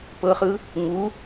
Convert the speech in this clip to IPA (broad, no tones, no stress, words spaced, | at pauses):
pɤχɯ | ŋu